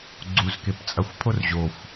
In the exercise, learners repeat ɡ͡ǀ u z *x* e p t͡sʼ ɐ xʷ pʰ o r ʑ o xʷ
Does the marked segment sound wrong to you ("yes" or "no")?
yes